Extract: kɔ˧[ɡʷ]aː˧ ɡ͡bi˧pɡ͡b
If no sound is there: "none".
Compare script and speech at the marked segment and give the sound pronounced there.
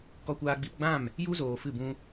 kʷ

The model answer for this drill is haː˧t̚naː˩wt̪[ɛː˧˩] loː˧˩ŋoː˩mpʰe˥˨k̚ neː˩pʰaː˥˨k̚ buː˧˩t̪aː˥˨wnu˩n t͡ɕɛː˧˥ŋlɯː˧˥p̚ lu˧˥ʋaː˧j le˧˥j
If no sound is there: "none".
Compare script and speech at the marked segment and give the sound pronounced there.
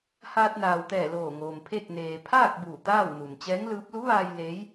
ɛː˧˩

